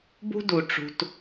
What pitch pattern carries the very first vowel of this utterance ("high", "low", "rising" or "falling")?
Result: high